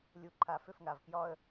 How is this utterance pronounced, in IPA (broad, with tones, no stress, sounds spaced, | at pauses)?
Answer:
lʲ u˨ ǃʰ a˨ f ʏ˦˨ f ŋ a˨ v k j ɒ˦ ə̯